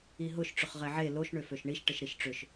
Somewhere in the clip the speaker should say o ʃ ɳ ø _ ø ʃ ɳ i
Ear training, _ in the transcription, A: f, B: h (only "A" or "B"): A